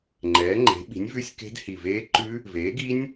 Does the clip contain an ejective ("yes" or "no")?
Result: no